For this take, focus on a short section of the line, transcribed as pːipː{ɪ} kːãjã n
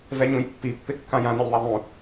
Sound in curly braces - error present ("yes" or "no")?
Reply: no